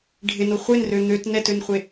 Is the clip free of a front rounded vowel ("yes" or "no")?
no